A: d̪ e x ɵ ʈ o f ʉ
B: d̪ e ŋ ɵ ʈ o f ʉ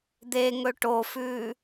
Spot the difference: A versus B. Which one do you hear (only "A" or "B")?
B